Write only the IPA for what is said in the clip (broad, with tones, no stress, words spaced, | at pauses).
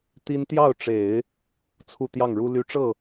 t̪i˥n t̪jɑ˥˩ʊ̯ʈ͡ʂe˨˩˦ɪ̯ | t͡sʰu˥˧ t̪jɑ˥˩ŋɻu˥ly˥ ʈ͡ʂɤ˥˩